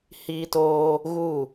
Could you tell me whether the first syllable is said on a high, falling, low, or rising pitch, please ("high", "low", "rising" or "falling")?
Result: high